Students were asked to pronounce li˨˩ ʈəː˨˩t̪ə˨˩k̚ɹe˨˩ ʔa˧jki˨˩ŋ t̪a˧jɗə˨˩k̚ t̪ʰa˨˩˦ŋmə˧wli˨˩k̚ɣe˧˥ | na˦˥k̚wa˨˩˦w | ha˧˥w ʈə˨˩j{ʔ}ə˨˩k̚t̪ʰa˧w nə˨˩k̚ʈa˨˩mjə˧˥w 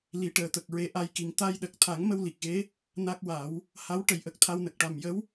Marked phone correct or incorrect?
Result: correct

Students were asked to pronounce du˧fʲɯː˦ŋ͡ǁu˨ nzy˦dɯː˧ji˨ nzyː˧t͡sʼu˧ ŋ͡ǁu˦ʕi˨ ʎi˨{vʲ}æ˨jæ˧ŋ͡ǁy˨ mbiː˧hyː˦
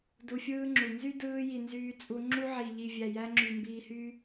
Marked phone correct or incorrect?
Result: correct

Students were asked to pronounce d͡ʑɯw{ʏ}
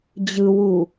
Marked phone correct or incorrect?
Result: incorrect: u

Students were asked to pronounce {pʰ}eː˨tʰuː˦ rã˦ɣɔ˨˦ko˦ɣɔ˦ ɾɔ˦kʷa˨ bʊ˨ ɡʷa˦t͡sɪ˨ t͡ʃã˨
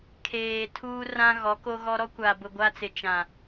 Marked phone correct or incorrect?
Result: incorrect: kʰ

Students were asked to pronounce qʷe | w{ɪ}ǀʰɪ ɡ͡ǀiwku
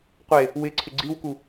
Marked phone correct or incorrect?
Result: correct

